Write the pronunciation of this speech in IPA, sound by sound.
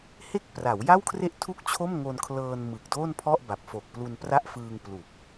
h e˥˩ k̚ p r a˩˦ w j a˥˩ w kʰ r e˥˩ ʔ tʰ u˥˩ k̚ t͡ɕʰ o˥˩ m ŋ o˧ n kʰ l ɤː˧ n m ɯ˨˩ k̚ d oː˥˩ n pʰ ɔ˥˩ ʔ b a˨˩ p̚ f o˨˩ k̚ p l u˧ n p r a˥˩ ʔ f ɯː˧ ŋ p l u˨˩ k̚

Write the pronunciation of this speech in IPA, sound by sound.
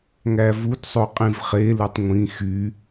ŋ æ v u d sˤ o qʼ ĩ v χ e l ɯ tˤ ŋʷ ĩ x y

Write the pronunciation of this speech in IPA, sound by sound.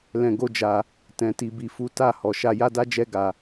l ɛ̃˧ ɡ o˦ d͡ʒ a˧ | t ɛ̃˧ t i˧ b i˧ f u˦ t a˦˨ h ɔ˨ ʃ a˧ j a˦ d a˦ d͡ʒ ɛ˦ ɡ a˧

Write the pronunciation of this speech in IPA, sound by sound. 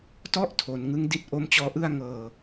t ɔ˥˩ ʔ tʰ o˩˦ n ŋ ɯ˦˥ ŋ d i˦˥ t̚ ʔ o˦˥ m t͡ɕ ɔː˦˥ ʔ ɯ˥˩ a̯ ŋ ɤː˧

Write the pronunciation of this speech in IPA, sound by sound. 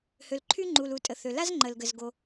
h ø˩ l ǃʰ y˥ ŋ͡ǃ u˩ l u˩ tʼ ə˩ θ ø˩ l a˥ z ŋ͡ǃ ə˩ l ɡ ə˩ z ɡ o˩

